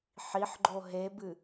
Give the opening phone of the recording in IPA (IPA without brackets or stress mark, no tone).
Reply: ħ